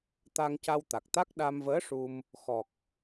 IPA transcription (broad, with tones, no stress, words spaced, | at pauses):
t̪a˧ŋca˧wt̪a˨˩k̚t̪a˦˥k̚ ɗa˧mvəː˧˥ ʂu˧m | xɔ˨˩k̚